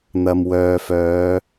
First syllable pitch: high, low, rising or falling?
low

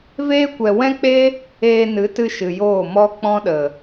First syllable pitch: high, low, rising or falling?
high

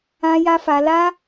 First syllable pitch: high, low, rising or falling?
high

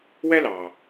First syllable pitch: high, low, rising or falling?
high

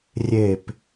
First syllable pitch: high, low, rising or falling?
falling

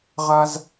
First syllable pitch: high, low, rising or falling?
high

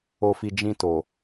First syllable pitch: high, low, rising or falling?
low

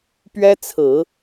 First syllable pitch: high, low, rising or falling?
high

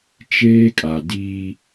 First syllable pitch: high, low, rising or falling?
high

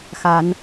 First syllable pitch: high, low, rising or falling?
rising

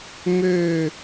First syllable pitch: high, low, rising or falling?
falling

